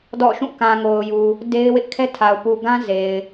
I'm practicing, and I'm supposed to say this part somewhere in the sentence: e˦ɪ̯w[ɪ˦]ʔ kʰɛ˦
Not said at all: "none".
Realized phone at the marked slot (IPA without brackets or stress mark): ɪ˦